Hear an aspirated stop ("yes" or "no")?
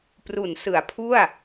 yes